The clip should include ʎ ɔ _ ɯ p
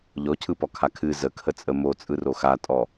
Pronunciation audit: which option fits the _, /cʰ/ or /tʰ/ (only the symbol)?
cʰ